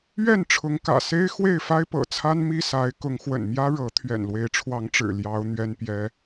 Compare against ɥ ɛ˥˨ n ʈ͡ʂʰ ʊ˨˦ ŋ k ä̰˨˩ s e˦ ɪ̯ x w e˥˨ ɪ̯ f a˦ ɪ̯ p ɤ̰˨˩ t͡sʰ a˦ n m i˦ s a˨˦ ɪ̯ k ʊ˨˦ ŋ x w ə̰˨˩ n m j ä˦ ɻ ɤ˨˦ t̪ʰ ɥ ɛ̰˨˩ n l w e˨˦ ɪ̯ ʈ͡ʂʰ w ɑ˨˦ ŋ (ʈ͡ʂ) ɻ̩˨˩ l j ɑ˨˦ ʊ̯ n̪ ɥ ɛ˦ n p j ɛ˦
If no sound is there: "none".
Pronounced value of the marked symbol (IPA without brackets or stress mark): ʈ͡ʂ